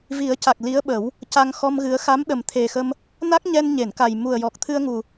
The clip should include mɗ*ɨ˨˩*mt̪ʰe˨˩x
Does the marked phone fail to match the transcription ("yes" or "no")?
yes